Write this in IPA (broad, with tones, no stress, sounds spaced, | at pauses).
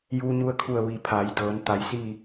j uː˧ ɲ u˧ ə̯ kʰ u˧˩ ə̯ ʋ i˩ pʰ a˩˧ j d ɤː˩˧ n t̪ a˩˧ j s i˥˨